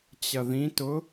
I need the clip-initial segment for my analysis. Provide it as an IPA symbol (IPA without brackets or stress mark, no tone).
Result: t͡ɕ